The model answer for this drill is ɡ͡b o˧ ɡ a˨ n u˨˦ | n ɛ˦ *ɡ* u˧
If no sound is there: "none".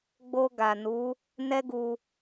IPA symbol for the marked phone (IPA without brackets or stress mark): ɡ